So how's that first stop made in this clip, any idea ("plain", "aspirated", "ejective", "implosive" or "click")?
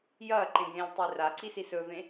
click